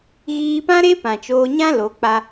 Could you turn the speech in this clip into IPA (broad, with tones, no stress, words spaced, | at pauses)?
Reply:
ɣiː˧pã˦ɾe˦ pã˨t͡ʃoː˧ɲã˦ lo˨˦k͡pa˦